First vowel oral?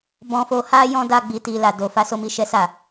no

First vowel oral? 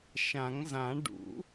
no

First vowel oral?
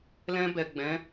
no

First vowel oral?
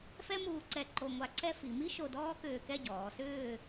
yes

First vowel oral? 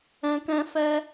no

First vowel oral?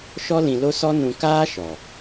yes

